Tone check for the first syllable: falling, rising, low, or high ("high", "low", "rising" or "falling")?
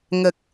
low